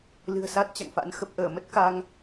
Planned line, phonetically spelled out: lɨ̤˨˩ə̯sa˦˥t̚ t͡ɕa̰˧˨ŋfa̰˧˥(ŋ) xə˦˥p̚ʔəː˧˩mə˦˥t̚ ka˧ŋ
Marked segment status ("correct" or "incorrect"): incorrect